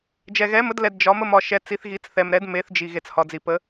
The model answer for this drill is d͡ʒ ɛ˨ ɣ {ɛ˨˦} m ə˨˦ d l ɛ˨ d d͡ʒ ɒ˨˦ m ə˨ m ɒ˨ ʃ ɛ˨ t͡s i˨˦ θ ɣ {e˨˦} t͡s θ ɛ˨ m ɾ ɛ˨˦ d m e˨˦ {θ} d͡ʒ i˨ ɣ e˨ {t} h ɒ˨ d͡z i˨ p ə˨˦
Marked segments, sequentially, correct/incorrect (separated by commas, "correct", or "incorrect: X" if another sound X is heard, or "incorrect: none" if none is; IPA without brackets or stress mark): correct, incorrect: i˨˦, correct, incorrect: t͡s